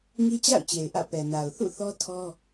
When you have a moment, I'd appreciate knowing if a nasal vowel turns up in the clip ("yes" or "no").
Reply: no